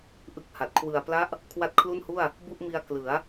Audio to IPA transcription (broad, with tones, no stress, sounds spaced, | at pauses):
ʔ ɯ˦˥ k̚ h a˨˩ t̚ kʰ w ɯ˨˩ a̯ p l a˦˥ ʔ | kʰ w a˦˥ t̚ kʰ l u˥˩ n h u˥˩ a̯ | b u˥˩ ʔ m i˧ a̯ k l ɯ˩˦ a̯